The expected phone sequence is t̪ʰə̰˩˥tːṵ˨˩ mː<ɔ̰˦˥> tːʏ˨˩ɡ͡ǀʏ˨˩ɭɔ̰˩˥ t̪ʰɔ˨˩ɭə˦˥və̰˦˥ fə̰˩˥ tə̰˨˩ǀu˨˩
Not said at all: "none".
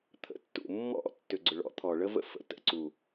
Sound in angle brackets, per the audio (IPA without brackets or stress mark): ɔ̰˦˥